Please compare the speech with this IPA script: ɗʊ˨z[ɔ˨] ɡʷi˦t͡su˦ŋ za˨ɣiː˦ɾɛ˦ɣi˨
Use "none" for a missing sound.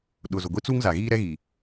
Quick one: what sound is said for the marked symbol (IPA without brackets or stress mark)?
ʊ˨